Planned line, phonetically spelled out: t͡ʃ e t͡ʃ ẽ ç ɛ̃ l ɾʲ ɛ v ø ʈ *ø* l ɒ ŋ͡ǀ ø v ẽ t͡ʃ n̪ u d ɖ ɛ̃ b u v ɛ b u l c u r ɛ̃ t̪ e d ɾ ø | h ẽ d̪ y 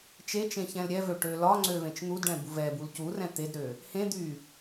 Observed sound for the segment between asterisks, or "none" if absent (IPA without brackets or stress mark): ø